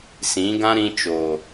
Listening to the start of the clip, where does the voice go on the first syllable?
rising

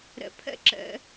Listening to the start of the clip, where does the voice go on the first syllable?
low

